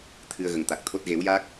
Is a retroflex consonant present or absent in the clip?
absent